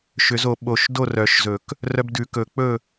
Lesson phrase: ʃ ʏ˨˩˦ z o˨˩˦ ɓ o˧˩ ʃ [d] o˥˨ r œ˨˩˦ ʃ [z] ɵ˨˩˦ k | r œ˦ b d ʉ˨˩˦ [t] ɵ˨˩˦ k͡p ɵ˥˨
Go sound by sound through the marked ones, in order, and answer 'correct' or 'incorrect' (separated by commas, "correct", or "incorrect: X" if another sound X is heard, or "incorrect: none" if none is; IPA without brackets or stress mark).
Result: correct, correct, incorrect: k